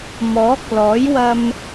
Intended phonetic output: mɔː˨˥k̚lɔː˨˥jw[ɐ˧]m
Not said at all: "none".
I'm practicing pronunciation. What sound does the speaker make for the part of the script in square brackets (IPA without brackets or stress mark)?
ɐ˧